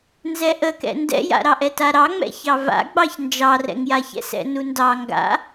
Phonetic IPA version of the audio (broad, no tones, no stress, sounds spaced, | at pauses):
n z ɛ ʔ ə k ɛ̰ n d ɛ̰ j a̰ ɾ ɑ ʔ ɛ t a ɾ ɑ ŋ͡m ɛ̰ ç ɑ v a̰ ɡ͡b ɑ ç n d͡ʒ ɑ r ɛ̰ ŋ j a ç ɛ̰ s ɛ̰ n u n d ɑ ŋ ɡ a̰